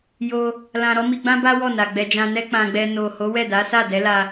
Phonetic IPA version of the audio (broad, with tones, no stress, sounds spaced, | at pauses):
j o˦ | l ã˧ ɾ ɔ˦ m i˧ ɡ͡b ã˦ b a˦ w ɔ˦˨ n a˨ ɡ͡b ɛ˧ d͡ʒ ã˧ n ɛ˦ k͡p ã˧ ɡ͡b ɛ˧ n o˨ h o˨˦ w ɛ˦˨ d a˨˦ s a˦˨ d ɛ˨˦ l a˧